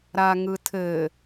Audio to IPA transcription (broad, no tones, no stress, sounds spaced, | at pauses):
ɾ a ŋ ɯ tʰ ɘ